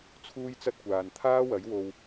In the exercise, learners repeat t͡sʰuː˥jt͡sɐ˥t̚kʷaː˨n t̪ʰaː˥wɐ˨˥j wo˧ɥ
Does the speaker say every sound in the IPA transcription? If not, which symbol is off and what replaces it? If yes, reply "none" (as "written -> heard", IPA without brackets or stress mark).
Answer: ɥ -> w